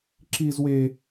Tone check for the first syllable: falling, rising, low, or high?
high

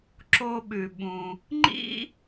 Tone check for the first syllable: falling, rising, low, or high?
high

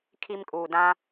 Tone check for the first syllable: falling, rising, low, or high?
high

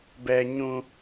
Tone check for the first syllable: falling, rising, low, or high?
high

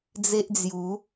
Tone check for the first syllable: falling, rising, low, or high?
high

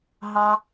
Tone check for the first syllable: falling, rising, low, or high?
high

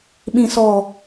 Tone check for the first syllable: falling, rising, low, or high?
low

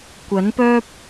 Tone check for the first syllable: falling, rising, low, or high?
rising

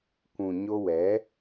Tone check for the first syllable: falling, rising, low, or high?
low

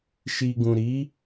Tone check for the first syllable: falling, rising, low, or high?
low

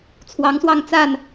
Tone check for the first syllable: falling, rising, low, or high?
rising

